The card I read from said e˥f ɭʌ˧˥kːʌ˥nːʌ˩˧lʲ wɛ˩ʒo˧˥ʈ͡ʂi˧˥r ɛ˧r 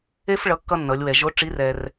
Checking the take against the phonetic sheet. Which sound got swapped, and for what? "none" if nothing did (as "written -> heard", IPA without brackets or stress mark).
none